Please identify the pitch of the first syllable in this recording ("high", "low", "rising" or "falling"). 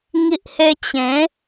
high